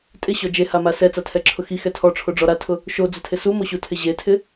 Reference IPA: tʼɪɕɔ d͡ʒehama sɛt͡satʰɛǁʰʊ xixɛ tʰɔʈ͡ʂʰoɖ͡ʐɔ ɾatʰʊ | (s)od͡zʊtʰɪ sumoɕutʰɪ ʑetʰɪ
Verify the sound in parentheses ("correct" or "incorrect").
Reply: incorrect